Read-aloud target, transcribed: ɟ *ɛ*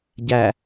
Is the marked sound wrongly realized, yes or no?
yes